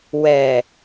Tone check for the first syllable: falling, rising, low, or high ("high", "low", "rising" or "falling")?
low